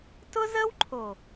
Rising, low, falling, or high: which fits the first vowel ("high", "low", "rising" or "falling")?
high